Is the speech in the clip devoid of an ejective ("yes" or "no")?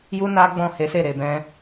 yes